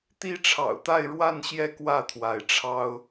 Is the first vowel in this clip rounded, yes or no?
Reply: no